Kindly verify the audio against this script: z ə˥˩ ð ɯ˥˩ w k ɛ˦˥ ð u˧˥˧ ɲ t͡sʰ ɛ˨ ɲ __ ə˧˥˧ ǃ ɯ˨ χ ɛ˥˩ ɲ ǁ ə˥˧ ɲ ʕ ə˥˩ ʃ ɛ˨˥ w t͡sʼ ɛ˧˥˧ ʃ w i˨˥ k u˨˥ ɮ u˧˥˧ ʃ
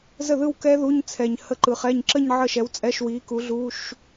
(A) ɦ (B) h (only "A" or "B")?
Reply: B